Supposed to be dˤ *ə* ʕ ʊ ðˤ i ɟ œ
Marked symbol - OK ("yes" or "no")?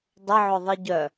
yes